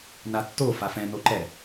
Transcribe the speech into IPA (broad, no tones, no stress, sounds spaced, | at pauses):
n a tː o f a f ɛ̃ n o ǃ ɛ